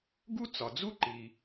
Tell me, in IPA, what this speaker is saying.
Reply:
ɡu˥t͡sɒ˩d͡zu˥ ǃi˩

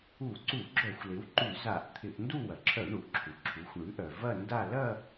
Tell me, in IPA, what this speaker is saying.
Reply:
u˧˩˧ǀu˧˩˧ɡ͡ǁœ˧˩˧xʷ lɪ˩˥wǃʉ˧˩˧za˧˩˧ʔ t̪ʰɪ˧˩˧ʔndu˥˧wɐ˩ ǁʰœ˧˩˧ ɳu˩ʔǁʰu˩ǁʰu˩˥xʷ ɳʉ˩˥ʔœ˩ vɐ˥˧nda˥˧ lɐ˥˧

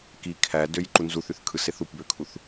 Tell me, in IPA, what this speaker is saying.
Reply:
ki kʰædøj ǃunzuθ yθkʰɯseθ upbøkʰuθ

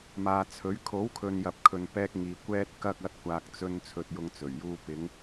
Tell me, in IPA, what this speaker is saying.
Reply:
maː˨t͡sʰɵ˨˥ɥ kʰo˨˥wkʰɵ˨njɐ˨p̚kʰɵ˨n pɛː˧k̚ŋiː˨ kʷɛː˧t̚kɐ˧k̚ ɐ˨˥t̚kʷaː˨k̚t͡sɵ˧n t͡sʰɵ˧t̚jʊ˧ŋt͡sɵ˨˩ɥjuː˧ pɪ˨˧ŋ

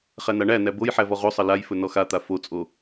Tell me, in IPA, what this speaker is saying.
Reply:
χænaɳænæ boj ħævɔʁosˤʌ lajfɵ nɔxat̪a fot͡sʼo

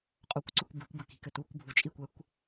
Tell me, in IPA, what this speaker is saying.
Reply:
qʼokʷǀʉkʷ bi̤kʷbəki̤kɘ t̪ukʷbʱu t͡ʃʼikʷɛkʷ

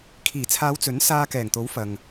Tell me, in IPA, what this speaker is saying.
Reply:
kʰiː˨˩t͡sʰaː˨˧w t͡sɵ˨˥nsaː˧kɛː˨˩ŋt̪o˨˥w fɐ˨ŋ

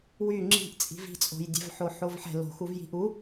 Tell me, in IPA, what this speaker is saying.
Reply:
wy ŋ͡ǁi̤ʔt͡sʼi̤ vi̤t͡sʼo̤jdʲɛ̤vħo ħovħɛ̤ lo̤xuvji̤ʔ u

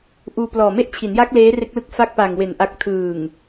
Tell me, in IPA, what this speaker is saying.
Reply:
ʔuː˧plɔː˨˩me˥˩ʔ t͡ɕʰi˩˦nja˦˥k̚ leː˦˥re˦˥k̚lɯ˦˥k̚ fa˦˥k̚pa˨˩ŋwe˩˦n ʔa˨˩k̚ tʰɯː˨˩ŋ

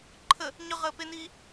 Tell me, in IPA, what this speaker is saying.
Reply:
ǃʰə | ɲʏʁəːpeniː

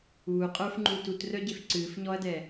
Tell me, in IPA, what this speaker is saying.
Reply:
uː qʼə˞fŋ͡ǃuːt utrœɟef ǀɨːfɲɔɐ̯dɛ

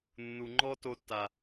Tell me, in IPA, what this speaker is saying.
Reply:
nːu˨ ŋ͡ǃɔ˦ to˧tːa˨

